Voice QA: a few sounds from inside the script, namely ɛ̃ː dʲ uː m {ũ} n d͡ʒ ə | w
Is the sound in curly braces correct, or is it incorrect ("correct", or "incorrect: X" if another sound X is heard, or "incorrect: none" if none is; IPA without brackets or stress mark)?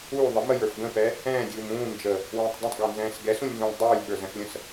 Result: incorrect: ũː